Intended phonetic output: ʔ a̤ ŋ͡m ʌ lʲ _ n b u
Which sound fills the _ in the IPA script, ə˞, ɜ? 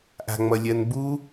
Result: ɜ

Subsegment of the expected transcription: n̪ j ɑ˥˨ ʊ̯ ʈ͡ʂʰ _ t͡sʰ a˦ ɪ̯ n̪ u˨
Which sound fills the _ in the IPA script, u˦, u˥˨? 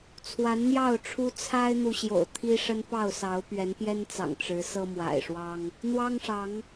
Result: u˦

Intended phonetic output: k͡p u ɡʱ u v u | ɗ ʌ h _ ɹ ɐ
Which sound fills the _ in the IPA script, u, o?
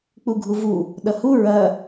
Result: u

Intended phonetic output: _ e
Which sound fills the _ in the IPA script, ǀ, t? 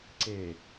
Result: ǀ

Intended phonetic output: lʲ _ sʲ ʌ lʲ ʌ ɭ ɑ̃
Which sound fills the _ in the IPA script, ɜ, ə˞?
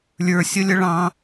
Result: ə˞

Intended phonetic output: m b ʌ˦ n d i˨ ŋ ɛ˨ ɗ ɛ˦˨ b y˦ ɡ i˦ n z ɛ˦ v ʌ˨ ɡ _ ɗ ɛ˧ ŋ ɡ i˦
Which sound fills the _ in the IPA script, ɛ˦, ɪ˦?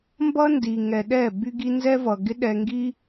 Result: ɪ˦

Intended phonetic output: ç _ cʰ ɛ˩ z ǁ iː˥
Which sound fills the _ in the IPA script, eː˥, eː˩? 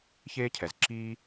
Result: eː˥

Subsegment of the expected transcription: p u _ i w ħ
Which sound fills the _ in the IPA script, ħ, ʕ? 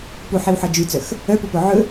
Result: ħ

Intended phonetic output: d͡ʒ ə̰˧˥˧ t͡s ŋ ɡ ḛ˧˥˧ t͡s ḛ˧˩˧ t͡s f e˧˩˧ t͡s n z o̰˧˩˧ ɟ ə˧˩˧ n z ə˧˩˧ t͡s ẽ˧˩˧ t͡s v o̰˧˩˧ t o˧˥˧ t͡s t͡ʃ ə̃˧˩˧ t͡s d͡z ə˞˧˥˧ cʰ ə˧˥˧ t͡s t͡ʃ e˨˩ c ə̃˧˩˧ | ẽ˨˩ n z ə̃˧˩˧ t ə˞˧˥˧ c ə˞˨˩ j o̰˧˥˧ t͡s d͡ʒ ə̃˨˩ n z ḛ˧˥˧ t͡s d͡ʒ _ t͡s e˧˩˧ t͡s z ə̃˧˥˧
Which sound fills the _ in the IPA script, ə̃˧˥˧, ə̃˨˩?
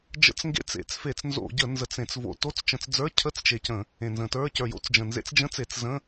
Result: ə̃˧˥˧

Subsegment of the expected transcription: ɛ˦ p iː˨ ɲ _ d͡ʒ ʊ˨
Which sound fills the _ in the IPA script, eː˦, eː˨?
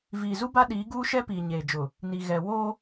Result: eː˨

